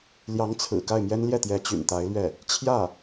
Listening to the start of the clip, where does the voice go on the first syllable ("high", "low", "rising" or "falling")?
rising